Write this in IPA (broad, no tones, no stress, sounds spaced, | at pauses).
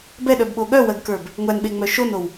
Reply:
b ɛ ɗ œ b ɓ o ɠ œ w ɜ ɡ k ə˞ b | ŋʷ æ n ɓ e ŋ͡m œ ʃ o n o w